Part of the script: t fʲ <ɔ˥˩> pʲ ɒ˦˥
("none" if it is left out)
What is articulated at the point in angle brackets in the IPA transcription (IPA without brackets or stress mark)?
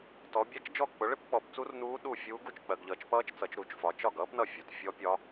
ɔ˦˥